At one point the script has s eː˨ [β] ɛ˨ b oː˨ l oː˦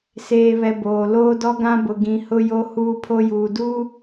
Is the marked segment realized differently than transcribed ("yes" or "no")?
no